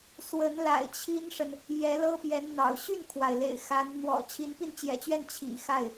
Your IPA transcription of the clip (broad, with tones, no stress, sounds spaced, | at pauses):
s w ə˧˥ n l a̰˨˩ ɪ̯ t͡ɕʰ i˥ n ʂ ə˨ n | j ɛ˧˥ l ɤ˥ p j ɛ˧˥ n n̪ ɑ̰˨˩ ʊ̯ ɕ y˥˩ n kʰ w a˩ ɪ̯ l ḛ˨˩ ɪ̯ x a˧˥ n n̪ w ɔ̰˨˩ t͡ɕʰ i˧˥ n p i˥˩ n t͡ɕ j ɛ̰˨˩ t͡ɕ ɥ ɛ˥˩ n t͡ɕʰ ḭ˨˩ x a˥˩ ɪ̯